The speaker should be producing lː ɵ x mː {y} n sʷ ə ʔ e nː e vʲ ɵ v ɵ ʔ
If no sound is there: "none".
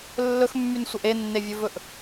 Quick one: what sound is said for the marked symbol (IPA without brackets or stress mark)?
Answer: y